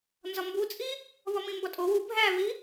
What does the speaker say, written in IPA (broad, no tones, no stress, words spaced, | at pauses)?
nzɒmbut͡sʼi | βɒmĩmbɒtʼo wu bʱæβi